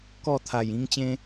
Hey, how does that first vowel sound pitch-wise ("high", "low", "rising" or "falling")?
falling